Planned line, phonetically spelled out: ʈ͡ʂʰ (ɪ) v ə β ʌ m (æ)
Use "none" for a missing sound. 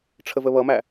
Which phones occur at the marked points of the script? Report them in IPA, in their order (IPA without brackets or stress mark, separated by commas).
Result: ə, æ